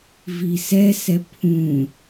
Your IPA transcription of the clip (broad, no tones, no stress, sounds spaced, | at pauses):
v i s ɛ s ɛ pʰ ũ